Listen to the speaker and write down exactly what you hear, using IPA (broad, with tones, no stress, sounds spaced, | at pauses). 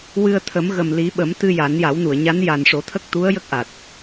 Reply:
w ɨ˧ ə̯ t̪ʰ ə˨˩˦ m ɣ ə˨˩ m l i˨˩˦ ɓ ə˨˩˦ m t̪ ɨ˧ j a˨˩˦ n j a˨˩˦ w n u˨˩˨ ə̯ ɲ a˧˥ n j a˨˩ n ʂ o˨˩˦ t̪ʰ ə˦˥ k̚ t̪ u˧˥ ə̯ j ə˦˥ k̚ ʔ a˨˩ t̚